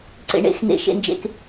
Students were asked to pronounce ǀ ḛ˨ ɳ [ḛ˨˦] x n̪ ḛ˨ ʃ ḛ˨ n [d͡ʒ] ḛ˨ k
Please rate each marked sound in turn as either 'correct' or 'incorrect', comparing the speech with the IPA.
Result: correct, correct

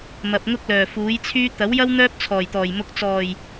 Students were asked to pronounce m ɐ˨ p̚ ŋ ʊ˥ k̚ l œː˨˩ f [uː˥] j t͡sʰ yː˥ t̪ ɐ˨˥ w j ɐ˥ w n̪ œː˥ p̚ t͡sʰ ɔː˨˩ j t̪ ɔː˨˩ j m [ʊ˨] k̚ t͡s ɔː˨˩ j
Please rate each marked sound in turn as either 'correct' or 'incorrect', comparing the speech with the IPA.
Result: incorrect: uː˨˥, correct

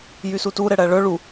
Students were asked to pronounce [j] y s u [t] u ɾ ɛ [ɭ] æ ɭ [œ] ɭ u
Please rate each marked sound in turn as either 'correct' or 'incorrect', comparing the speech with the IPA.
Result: correct, correct, incorrect: ɽ, correct

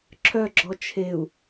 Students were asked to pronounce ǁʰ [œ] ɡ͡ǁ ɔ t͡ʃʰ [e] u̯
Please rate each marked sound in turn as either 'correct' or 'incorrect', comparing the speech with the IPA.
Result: correct, correct

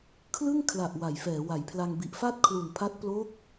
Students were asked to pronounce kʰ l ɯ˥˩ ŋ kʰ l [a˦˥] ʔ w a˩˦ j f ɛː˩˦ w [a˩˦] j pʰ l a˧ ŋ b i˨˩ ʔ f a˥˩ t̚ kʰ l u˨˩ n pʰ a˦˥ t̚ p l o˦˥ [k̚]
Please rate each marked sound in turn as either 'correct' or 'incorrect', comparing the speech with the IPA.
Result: incorrect: a˨˩, correct, correct

